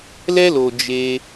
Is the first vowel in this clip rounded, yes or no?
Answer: no